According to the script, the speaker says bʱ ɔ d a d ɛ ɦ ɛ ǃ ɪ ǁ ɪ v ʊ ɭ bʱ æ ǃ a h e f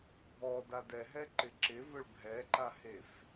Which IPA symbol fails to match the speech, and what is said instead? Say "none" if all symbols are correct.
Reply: æ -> ɛ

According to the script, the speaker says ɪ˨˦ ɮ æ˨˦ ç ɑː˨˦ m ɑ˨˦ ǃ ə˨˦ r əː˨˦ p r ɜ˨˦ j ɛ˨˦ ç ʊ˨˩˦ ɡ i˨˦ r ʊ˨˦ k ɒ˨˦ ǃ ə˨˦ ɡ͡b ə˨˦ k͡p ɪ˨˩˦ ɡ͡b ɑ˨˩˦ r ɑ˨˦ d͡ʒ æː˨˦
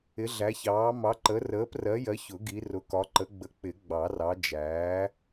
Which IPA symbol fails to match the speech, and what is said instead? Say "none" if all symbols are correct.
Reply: ɛ˨˦ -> ɜ˨˦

